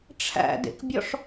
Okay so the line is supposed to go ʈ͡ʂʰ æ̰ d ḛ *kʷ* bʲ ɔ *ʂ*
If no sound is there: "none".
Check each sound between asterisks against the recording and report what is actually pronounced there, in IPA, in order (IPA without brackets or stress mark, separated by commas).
k, ʂ